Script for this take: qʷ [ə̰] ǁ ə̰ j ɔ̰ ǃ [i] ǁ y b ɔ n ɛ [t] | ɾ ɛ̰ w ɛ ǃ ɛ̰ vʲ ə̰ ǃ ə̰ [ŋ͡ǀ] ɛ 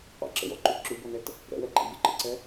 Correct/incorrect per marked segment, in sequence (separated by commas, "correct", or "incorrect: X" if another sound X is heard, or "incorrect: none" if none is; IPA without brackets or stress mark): incorrect: ɛ̰, incorrect: y, correct, incorrect: ǀ